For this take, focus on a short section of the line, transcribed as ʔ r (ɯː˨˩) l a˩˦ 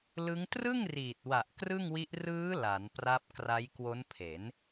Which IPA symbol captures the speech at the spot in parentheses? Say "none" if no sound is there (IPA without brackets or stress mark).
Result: ɯː˦˥